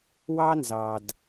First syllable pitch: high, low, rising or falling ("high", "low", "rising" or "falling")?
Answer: high